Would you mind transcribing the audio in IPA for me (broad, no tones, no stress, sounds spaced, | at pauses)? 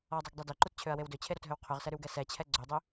ɔ dˤ o ɡ dˤ ø d œ ǃ u t t͡ɕʰ ø ɐ̯ w e w d ø t͡ɕʰ e ɾ o t ɦ ø w qʰ ø ʁ s ɛ ɾ y w ɡ ɛ s ɛ t͡ɕʰ ɛ ɡ͡ǀ ø dˤ ø